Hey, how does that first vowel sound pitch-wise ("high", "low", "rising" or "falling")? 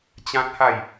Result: high